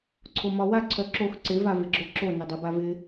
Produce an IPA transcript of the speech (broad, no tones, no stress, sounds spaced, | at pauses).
ǀʰ o m ɒ w a ǀʰ œ ǁ o x ǀ ɪ v a v ɪ ɡ͡ǁ o ǁ o n ɪ dˤ u b a v ɪ